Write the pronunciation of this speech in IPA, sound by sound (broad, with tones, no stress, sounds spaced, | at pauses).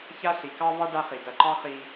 ç a˦ ɬ i˨ k ɑ˦ v ɑ˦ ɖ a˦ χ i˨ d ɐ˨ ǃ ɑ˦ χ i˦